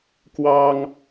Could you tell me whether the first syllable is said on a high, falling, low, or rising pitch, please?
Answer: high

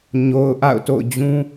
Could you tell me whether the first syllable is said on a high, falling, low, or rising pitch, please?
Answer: low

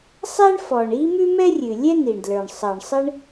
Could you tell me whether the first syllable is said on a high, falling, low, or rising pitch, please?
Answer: high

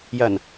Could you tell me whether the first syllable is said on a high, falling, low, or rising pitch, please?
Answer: low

